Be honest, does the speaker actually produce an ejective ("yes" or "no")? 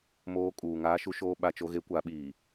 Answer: yes